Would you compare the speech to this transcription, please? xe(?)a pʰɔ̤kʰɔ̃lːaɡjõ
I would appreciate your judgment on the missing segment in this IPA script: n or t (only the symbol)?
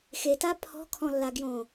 t